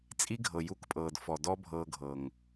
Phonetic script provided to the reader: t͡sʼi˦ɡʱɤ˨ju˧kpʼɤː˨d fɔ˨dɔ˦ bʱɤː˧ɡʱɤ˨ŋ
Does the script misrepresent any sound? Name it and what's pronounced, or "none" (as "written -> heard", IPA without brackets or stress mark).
none